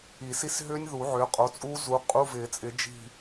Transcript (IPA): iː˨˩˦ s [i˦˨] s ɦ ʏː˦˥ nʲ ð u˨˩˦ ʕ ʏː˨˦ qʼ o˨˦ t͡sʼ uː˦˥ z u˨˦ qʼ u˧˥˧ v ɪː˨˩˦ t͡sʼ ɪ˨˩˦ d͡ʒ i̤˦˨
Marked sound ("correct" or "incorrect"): correct